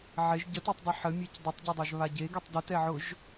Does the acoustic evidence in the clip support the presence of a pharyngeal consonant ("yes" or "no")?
yes